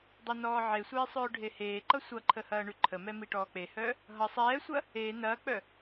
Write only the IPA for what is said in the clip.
dˤʌnɔːʕesʷeː sˤœːɖʱeheːǃʌ sʷʌǃʰə hɐːɳʉǃʰəmɛ miʈɔːk͡pehœː | ɦʌ sˤɛːsʷɐ | e nɐːk͡pœ

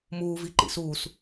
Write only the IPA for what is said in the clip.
muːviǃḭ suːs

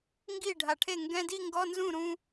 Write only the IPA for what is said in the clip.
ŋɡi˥˩ ɖʱa˨˩ʈʰe˥˩ ŋɡɛ̃˧˥˧di˥˧ŋɡɔ˧˥˧nzũ˥˩ ɾũ˧

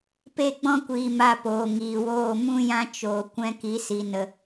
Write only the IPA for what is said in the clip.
pe˦˨ɡ͡bɔ̃˦kʷiː˨ ma˧poː˨ ŋiː˨woː˦˨ mũ˦jã˦ t͡ʃoː˨ kʷɛ̃˧ki˨˦si˨ nə˨

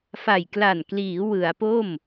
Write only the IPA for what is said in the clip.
fa˨˩jkla˨˩nkliː˩˦ wɯ˩˦a̯po˥˩m

